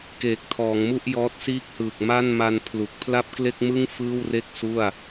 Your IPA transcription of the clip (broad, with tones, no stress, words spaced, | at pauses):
keː˨˩k̚tʰɔː˩˦ŋmu˥˩ʔ jɔː˦˥t̚siː˥˩k̚hɯː˨˩k̚ ma˥˩n ma˧npʰlu˨˩k̚ pʰla˥˩p̚kle˥˩k̚mɯ˥˩ŋ fɯː˥˩wre˥˩k̚ su˥˩a̯